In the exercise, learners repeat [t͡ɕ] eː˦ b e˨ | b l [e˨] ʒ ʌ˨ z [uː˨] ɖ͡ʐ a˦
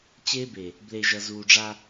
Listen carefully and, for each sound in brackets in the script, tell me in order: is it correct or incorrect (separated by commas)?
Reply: correct, correct, correct